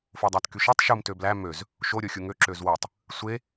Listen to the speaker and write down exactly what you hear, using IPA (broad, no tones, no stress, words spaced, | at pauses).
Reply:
fodˤætkyʃetˤ ʃum tøblæ møz | ʃo ɾʲoxʲuŋø ǁøzwotˤ | sʷe